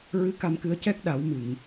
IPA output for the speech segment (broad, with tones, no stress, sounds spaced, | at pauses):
ɹ ɨ˧˥ k a˧ m k ɨ˧ ə̯ c ɛ˦˥ k̚ ɗ a˨˩˦ w m ɨ˨˩˨ ŋ